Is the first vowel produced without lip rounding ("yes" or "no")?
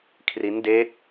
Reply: yes